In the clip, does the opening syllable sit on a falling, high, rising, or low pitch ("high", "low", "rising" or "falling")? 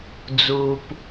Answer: low